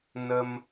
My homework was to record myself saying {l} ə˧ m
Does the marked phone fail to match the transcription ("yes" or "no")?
yes